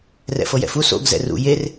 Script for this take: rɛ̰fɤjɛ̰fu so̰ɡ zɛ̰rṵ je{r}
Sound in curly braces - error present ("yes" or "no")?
no